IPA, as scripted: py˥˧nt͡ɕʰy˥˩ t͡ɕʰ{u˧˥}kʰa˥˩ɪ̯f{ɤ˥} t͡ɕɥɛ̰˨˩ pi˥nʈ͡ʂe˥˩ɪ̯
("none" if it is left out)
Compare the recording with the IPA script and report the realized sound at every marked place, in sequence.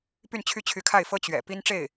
y˧˥, ɤ˥

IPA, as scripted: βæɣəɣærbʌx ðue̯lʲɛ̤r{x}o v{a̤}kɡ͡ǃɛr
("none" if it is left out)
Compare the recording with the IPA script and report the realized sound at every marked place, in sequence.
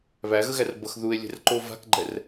ǃ, a̤

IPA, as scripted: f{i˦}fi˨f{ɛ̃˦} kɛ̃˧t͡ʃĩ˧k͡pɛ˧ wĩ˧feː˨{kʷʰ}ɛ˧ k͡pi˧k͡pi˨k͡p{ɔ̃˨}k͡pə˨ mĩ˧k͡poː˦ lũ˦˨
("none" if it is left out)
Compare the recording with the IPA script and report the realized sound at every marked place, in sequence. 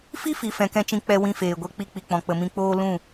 i˦, ɛ̃˨, ɡʷ, ɔ̃˨

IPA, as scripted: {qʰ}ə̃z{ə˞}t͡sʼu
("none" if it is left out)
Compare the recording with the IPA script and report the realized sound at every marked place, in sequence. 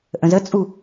ʔ, ə

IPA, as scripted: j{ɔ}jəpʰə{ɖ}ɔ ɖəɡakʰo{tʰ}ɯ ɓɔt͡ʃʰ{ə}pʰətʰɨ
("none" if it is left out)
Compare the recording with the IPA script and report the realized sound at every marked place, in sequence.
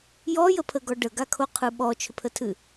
ɔ, ɡ, qʰ, ʏ

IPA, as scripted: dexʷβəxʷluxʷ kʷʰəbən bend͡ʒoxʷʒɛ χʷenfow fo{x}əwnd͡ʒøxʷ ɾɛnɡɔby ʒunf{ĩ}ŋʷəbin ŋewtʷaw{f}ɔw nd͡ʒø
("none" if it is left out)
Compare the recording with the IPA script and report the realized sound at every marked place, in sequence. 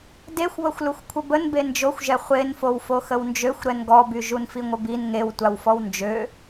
x, i, f

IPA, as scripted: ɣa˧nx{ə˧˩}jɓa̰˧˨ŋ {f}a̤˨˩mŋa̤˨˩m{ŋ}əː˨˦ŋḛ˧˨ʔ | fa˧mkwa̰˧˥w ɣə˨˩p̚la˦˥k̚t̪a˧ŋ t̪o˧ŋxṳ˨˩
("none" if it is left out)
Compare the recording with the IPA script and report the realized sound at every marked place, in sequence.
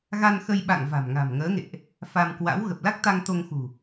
ə˧, v, ŋ

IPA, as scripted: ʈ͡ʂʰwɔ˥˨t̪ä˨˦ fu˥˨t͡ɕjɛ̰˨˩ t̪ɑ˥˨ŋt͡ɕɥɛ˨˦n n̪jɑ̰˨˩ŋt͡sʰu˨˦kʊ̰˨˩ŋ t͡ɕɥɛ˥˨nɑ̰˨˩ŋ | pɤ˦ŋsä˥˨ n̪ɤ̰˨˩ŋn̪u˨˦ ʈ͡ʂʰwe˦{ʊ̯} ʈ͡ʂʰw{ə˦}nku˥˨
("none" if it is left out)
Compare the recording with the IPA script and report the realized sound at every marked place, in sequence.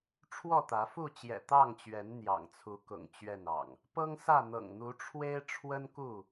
ɪ̯, ə˦

